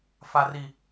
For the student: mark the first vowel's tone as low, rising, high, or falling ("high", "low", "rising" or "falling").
low